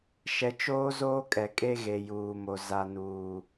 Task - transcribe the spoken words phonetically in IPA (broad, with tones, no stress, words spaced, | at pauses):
ʃɛ˨t͡ʃoː˦zoː˦ kʼɛ˨kʼe˦ɣe˨ juː˨mo˨ za˨nuː˨